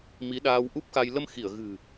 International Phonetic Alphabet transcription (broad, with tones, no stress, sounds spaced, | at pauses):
m i˨˦ ɗ aː˧ w ʔ u˦˥ p̚ x a˧ j l ə˧ m x i˧˩ ə̯ ɣ ɨ̤˨˩